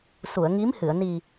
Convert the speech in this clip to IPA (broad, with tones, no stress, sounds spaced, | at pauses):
s u˨˩˨ ə̯ ŋ i˧˥ m h ɨ˨˩˨ ə̯ n i˨˩